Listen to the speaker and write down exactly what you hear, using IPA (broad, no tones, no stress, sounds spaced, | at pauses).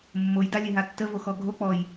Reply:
mː o j d a lʲ e ɦ a tː ə v o x ɔ ɡʱ o k͡p ɔ j